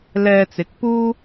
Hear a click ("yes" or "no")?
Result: no